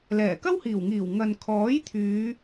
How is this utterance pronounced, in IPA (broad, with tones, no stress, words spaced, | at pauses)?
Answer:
lɛː˨˩kɐ˥whiː˨˩wŋiː˨˩w ŋɐ˨nkʰɔː˨˥j t̪ʰyː˨˧